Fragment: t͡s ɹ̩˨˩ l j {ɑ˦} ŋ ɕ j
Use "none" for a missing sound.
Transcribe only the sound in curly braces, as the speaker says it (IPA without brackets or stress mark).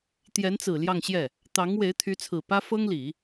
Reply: ɑ˥˧